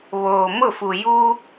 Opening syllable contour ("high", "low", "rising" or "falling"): low